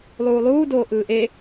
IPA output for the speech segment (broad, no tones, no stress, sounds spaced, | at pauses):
lˠ uː lˠ uː d oː ʔ ɯː ʔ e